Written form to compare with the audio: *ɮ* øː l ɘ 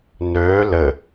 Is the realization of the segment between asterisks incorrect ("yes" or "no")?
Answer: yes